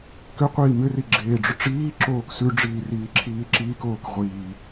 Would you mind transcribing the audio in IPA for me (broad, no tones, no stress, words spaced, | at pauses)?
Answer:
kʏqʷiː mʏri ɡ͡ǁeːɖ͡ʐʏʈ͡ʂiːǁoːk sʉɖ͡ʐiː riːǁʰiːǁiːkoːk ʁʷiː